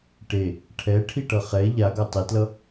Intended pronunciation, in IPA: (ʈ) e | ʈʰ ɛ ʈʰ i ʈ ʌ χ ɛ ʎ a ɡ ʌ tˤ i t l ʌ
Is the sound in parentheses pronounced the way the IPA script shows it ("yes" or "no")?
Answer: yes